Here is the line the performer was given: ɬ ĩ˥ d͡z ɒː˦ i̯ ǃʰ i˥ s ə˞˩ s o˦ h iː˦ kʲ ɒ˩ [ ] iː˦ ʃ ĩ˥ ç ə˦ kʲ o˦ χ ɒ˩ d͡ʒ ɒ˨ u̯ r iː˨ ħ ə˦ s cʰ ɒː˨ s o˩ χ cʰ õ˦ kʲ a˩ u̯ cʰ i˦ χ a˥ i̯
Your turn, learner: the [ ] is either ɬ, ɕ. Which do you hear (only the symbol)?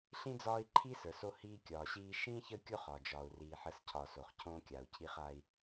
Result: ɕ